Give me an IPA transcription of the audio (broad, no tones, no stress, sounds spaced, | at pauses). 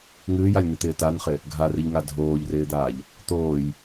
ŋ ɨː j a lʲ n ɨ t̪ ɪː t a n χ ɪ | ɡʱ a r ɨ ʎ ŋ a dʱ oː ʎ r ɪː d̪ aː ʎ | t̪ oː j